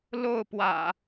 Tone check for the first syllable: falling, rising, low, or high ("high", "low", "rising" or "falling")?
falling